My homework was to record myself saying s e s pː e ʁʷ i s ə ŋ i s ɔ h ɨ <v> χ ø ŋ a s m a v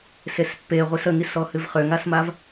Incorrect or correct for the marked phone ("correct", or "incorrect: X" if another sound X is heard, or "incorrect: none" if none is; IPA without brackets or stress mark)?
correct